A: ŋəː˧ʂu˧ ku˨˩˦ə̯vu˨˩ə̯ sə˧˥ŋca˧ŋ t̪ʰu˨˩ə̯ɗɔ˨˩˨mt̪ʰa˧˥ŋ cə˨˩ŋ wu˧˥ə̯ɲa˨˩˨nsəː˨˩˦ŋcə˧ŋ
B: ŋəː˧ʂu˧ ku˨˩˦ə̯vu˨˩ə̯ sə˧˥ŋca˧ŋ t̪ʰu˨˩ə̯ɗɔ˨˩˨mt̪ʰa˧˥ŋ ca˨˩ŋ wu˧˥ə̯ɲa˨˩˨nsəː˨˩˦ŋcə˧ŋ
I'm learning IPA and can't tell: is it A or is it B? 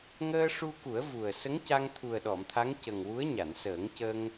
A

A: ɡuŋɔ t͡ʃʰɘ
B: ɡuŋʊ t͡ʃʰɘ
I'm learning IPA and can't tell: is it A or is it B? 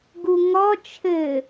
A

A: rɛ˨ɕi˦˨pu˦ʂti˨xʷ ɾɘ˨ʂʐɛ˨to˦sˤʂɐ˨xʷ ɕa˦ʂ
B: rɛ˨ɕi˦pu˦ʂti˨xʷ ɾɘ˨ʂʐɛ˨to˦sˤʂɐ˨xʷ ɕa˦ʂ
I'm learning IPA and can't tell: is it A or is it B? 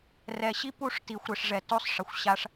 B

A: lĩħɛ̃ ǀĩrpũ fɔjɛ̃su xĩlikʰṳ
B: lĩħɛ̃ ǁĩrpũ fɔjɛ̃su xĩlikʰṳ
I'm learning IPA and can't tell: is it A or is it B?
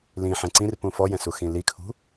A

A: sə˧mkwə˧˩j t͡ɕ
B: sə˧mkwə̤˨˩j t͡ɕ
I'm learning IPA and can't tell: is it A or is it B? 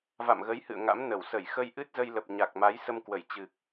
A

